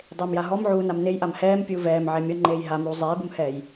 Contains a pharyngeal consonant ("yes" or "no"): yes